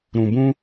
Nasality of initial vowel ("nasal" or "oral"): nasal